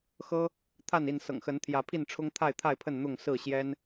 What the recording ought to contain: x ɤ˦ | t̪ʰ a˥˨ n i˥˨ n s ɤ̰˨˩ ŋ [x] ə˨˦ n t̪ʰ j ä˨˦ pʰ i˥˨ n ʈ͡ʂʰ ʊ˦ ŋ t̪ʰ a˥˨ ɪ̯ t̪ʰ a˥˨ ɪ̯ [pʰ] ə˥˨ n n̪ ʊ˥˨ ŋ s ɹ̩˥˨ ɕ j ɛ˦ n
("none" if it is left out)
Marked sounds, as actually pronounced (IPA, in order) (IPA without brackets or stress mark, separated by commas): x, pʰ